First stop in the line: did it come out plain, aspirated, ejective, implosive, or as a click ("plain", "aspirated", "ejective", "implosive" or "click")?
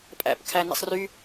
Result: ejective